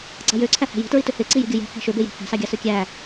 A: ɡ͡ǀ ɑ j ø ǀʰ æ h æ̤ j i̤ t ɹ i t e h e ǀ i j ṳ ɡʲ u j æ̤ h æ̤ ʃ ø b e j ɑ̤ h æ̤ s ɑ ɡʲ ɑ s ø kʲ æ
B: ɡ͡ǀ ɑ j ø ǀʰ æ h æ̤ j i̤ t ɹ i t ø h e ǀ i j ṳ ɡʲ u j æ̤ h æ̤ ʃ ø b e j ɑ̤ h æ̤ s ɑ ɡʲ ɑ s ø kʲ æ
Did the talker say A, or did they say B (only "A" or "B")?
B